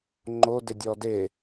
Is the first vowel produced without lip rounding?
no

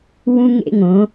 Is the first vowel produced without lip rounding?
no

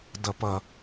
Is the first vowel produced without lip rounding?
yes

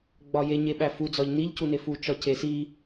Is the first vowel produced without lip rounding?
no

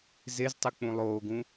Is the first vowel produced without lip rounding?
yes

